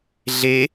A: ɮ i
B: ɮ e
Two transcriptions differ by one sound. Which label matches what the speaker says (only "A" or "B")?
B